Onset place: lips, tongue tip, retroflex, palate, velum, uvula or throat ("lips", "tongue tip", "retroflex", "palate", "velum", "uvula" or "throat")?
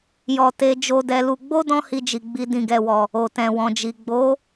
palate